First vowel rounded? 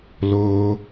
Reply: yes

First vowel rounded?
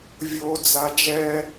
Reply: yes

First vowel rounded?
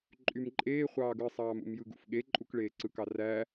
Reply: yes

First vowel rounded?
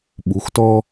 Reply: yes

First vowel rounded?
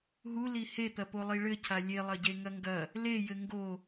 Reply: yes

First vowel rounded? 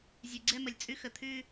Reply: yes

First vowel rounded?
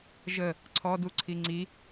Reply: no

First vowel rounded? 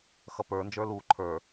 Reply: no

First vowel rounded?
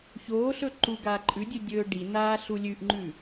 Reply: yes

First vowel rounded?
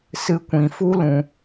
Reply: no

